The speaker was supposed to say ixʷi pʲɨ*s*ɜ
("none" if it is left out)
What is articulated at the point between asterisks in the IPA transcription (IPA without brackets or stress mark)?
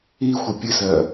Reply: s